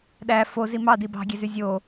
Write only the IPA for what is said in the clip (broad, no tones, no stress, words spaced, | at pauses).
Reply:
ɗæ fo zimɑ dibɑ̤ɡʲezy zʲo